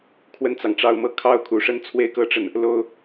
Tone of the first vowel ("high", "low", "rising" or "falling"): high